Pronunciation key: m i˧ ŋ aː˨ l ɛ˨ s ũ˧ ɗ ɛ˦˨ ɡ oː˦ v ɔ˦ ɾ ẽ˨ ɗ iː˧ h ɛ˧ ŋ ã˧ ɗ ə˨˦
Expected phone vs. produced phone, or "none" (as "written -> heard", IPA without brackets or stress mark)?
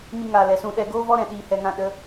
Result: ẽ˨ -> ɛ̃˨